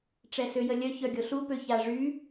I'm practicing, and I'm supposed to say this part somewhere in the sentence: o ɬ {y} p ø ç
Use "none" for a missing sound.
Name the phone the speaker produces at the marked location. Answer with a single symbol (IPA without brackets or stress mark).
u